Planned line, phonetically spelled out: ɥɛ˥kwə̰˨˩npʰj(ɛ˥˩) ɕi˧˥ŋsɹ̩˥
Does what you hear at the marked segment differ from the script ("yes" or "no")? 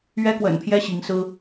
yes